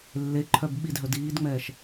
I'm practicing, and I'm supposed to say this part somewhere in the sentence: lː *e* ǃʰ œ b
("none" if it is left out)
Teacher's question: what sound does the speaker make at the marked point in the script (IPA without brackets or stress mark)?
e